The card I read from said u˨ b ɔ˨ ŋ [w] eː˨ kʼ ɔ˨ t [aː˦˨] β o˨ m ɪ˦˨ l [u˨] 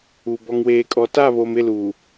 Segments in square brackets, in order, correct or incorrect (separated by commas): correct, incorrect, correct